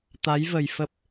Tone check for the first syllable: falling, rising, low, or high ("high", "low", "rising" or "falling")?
rising